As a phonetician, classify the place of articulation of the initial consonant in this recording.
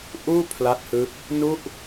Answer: glottal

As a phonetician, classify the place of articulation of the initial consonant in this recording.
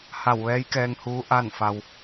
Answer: glottal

